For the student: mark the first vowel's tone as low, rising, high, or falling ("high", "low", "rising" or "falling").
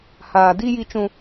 low